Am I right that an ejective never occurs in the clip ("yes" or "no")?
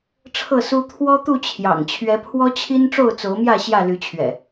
yes